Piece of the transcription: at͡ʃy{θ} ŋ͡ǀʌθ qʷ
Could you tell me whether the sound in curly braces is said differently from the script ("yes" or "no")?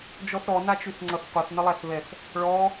no